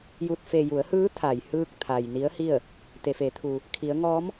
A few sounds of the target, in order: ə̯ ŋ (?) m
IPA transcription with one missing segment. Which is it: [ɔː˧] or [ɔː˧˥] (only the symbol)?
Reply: ɔː˧˥